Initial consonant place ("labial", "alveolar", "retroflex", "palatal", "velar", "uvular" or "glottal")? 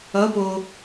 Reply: labial